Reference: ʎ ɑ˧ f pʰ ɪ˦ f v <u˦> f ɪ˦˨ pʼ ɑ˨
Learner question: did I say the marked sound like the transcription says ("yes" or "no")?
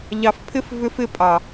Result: no